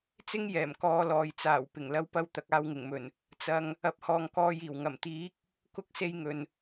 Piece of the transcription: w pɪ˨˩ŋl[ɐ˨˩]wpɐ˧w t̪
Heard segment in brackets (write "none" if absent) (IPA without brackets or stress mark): ɐ˧